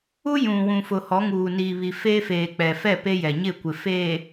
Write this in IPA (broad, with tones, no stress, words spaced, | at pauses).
u˦ jũ˨ wũ˨fʊ˨hɔ˨˦ŋuː˨ niː˨βi˨ feː˦feː˨k͡pɛ˨ fɛ˦˨ pe˦jɛ˨ɲɪ˦˨kʷɪ˨ feː˨